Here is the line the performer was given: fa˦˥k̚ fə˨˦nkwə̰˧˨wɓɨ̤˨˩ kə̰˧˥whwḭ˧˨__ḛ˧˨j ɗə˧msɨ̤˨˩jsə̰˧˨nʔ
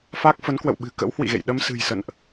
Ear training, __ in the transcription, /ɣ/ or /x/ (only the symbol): ɣ